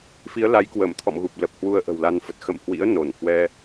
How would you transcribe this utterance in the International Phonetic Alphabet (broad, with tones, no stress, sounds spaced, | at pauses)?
f i˨˦ ə̯ l a˨˦ j k w əː˧˩ m t̪ʰ ɔ̰˧˨ m ɣ u˨˩ p̚ l ə˨˩ p̚ h w u˧ ə̯ ʔ ə̤˨˩ w l a˧ n f ə˨˩ t̚ x ə̰˧˨ m h w ḭ˧˥ ə̯ n o˧˩ n h w ɛ˧